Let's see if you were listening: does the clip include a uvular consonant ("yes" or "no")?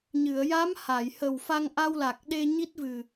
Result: no